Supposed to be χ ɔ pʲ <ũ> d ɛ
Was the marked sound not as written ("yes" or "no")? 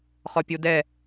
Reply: yes